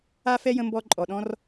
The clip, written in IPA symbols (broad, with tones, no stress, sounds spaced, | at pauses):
a˥ f ɛ˥ j ə̃˧ m b ɔ˧ ǃʼ ɔ˩ ɗ ɔ̃˥ r